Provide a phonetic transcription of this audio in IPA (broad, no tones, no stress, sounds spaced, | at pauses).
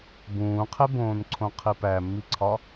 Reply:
b ũː qʰ e b õː n ǀʰ õ qʰ i p æ mː i ǀʰ ɒ